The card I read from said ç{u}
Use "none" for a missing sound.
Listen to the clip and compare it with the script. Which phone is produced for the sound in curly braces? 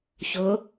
ʊ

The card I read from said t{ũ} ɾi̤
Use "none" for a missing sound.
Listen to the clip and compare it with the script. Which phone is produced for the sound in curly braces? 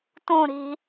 ũ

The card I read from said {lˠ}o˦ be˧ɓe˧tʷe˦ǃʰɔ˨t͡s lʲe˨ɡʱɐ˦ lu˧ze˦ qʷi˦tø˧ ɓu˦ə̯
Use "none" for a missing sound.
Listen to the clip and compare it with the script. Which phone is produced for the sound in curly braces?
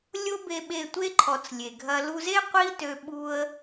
lʲ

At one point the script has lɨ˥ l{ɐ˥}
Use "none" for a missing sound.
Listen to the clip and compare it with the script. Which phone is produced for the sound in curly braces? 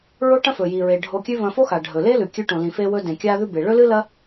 ɐ˥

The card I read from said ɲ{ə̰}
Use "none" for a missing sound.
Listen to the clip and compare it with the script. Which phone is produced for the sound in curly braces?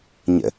ə̰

